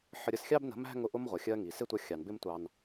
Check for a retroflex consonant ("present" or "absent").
absent